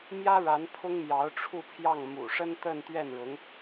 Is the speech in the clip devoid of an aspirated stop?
no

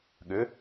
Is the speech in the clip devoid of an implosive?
no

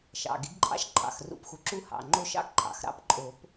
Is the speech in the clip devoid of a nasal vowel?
yes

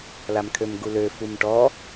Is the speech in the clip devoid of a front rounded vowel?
no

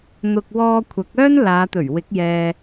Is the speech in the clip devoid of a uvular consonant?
yes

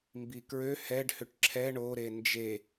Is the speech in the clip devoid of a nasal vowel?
yes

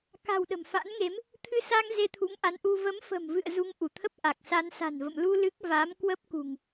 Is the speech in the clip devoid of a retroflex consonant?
yes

